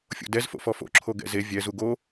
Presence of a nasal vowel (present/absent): absent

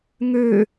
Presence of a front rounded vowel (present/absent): present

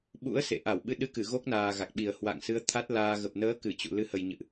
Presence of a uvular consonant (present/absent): absent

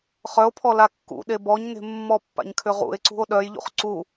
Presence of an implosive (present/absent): present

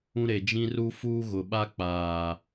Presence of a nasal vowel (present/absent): present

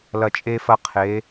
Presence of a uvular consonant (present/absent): present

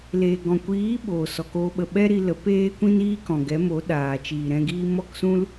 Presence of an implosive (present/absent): present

